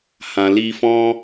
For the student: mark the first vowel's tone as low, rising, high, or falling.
low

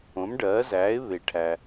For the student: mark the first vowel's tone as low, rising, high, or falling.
rising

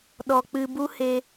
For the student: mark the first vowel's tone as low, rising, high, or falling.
low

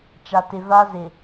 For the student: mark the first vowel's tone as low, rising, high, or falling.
low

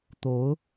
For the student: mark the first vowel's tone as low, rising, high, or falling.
rising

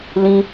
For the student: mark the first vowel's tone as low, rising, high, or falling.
high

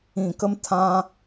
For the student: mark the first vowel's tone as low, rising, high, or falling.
low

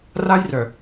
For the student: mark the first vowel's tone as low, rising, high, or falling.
high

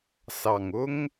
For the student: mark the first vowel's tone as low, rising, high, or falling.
low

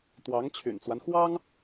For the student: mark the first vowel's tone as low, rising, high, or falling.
rising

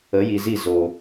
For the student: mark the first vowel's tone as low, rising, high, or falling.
rising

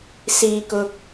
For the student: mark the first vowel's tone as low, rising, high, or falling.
low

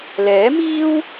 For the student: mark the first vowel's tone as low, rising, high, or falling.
rising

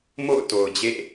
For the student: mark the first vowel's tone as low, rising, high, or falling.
falling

